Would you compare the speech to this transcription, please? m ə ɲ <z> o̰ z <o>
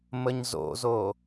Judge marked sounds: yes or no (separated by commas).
yes, yes